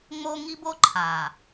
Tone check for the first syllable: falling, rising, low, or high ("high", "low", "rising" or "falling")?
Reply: high